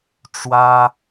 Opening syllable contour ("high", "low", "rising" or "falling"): high